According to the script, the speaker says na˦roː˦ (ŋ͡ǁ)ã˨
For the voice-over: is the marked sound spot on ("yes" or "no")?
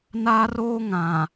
no